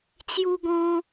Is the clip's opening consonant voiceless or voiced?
voiceless